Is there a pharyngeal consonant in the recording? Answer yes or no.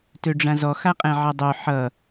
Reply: yes